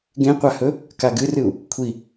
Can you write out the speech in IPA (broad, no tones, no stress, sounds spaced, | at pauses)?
ɡ ẽ qʷ a h ɵ | k a ɡ ɨ r ɨ u̯ | kʷʰ i